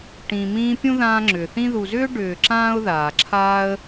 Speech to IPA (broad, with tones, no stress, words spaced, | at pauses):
ʈĩ˨mĩː˦ pʲũ˥ ðãː˦ŋ͡ǁʏː˩θĩ˥ ðu˨zʏː˥ ɖʏː˨ǁãː˥ʊ̯ ðaː˩ǁʰaː˦ə̯